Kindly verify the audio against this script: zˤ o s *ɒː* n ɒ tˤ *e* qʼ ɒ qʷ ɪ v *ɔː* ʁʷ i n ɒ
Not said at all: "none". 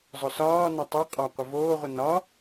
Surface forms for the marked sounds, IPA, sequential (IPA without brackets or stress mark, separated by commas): ɒː, e, oː